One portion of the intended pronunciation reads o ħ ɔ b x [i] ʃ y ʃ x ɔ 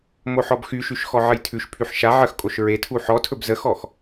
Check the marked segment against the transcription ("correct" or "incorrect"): incorrect